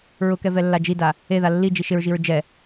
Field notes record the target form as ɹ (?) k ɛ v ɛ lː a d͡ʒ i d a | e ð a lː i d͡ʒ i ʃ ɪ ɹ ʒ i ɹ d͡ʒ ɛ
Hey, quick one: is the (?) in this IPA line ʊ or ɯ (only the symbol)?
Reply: ʊ